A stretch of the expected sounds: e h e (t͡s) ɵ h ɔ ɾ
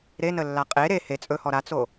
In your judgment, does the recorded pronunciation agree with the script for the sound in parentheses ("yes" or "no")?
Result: no